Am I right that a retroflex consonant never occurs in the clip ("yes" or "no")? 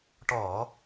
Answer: no